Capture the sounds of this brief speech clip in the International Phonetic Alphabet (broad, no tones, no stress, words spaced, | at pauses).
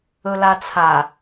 ɵlat͡sʰa